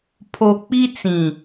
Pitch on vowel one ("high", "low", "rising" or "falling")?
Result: low